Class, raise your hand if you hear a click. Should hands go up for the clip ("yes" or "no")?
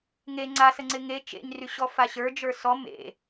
yes